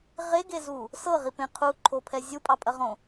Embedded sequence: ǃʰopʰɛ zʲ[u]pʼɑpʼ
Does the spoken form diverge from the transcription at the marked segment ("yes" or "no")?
no